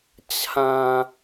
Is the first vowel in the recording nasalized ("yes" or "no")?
yes